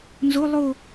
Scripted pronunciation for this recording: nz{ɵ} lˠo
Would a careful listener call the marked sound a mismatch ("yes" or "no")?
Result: yes